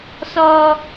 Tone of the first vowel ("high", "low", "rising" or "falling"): low